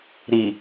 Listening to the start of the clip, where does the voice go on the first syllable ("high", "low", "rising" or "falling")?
low